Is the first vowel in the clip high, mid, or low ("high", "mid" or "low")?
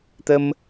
mid